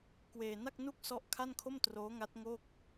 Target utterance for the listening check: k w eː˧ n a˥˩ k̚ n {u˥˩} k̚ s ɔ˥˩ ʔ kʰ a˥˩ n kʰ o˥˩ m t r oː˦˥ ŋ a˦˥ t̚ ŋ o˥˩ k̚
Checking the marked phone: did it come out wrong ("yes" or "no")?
no